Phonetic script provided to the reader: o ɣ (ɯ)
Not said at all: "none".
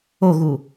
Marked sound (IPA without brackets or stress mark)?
u